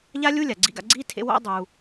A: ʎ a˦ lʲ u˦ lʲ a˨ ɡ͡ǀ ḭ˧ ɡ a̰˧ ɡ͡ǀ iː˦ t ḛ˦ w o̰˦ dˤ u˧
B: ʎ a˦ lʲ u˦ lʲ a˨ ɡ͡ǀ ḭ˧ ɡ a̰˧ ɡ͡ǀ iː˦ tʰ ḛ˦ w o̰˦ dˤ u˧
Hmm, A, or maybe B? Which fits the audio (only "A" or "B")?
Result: B